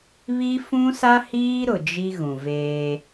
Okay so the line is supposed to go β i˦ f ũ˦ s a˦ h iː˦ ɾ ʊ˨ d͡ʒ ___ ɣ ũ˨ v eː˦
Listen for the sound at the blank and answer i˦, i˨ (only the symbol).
i˦